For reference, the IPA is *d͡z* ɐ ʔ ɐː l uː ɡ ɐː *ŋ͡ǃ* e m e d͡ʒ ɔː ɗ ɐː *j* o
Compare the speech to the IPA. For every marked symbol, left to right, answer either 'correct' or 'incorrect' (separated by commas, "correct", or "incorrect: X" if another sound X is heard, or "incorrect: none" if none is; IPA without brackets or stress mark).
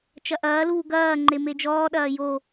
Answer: incorrect: t͡ʃ, correct, correct